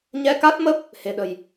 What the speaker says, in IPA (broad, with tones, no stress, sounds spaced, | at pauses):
ɲ ɛ˧ k a˦˥ t̚ m ə˦˥ p̚ | h e̤˨˩ ɗ ə̤˨˩ j